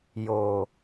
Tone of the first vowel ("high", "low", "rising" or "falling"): low